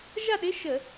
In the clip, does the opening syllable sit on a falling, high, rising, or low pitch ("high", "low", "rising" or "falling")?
falling